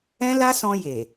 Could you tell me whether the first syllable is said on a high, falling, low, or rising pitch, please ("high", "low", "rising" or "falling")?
high